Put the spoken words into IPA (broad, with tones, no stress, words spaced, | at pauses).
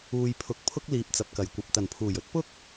uː˨jpʰʊ˨k̚ pʰʊ˥k̚liː˨p̚t͡sɐ˨p̚kɐ˨˩j kʷɐ˨p̚t̪ɐ˨˩npʰuː˨˩jɵ˥t̚ pʊ˥k̚